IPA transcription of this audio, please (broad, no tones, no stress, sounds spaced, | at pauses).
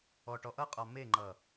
ɔ ʈ ɔ ʔ ʌ qʼ ɔ m e ŋ͡ǃ ʌ